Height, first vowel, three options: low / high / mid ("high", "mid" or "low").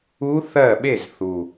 high